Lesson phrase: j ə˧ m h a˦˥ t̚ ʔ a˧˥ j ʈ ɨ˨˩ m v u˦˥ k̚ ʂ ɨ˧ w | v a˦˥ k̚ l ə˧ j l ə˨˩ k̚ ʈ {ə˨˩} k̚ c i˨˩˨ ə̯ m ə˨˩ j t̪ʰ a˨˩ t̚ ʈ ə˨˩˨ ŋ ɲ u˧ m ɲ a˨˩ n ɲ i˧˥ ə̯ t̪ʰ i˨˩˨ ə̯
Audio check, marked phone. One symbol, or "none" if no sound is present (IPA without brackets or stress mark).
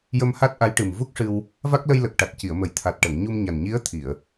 a˨˩